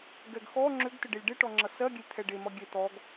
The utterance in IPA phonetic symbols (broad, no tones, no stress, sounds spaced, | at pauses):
ɡ ɛ ɡ x ɔ ŋ͡ǁ ʏ ɡ t ʏ ɖ e lʲ ɖ e ʈ ɔ ŋ͡ǁ ʌ s ɜ ɡʲ e lʲ t̪ʰ ɛ ɖ e m ʌ ɡʲ e t̪ ɔ ɡ